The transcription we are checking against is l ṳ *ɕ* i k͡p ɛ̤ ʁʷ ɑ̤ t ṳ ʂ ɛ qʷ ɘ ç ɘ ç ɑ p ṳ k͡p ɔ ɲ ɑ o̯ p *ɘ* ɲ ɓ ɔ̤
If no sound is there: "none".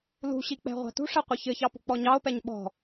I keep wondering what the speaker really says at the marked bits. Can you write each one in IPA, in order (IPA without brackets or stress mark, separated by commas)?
ɕ, ɛ